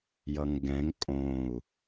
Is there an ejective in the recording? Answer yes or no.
yes